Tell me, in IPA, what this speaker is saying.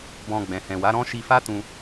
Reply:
bɔ̃˧ ɡ͡bɛ̃˨hɛ̃˨wa˨˦ɾɔ̃˦ ʃi˧fa˦tũ˧

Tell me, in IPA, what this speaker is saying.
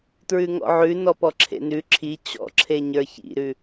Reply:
tɹʉŋɔ̰ʕʉnɔ pɔǁʰḛnʉ ǁʰi t͡ɕɔ̰ǁʰeɲə˞ çḭɾʉ

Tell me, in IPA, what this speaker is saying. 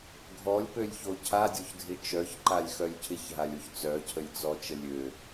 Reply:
ɡʱɔlʲpølʲço cʰadʲoçdʱɪ t͡ʃœçǃalʲxœlʲ cʰɪçɦalʲoç t͡sœcʰəlʲt͡sɔt͡ʃə lʲø

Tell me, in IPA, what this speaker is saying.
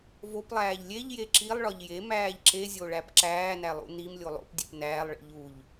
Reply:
voplˠæːʎ lʲeʎje ǁilˠɭɒʎ jemæːʎ ǁezʲoɭæp ǁæːnælˠṵ nimlʲo lˠo̰pdʲep næːlˠɭḭ ʎuʎ

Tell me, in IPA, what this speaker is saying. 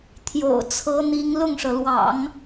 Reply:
t̪ʰjo̰˨˩ʊ̯t͡sʰɤ˧˥n̪i˧˥ŋ lʊ˥˩ŋʂɤ˩lwɑ̰˨˩˦ŋ

